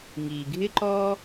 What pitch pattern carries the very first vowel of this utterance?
low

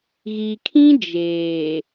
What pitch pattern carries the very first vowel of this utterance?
low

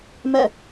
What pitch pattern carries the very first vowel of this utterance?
falling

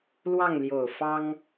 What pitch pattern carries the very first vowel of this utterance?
falling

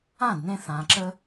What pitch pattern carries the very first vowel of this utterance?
falling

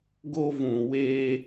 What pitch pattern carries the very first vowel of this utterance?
high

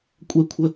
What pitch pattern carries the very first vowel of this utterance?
high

